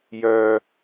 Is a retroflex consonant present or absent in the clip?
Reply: absent